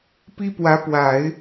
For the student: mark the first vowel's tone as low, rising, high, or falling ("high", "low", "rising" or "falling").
high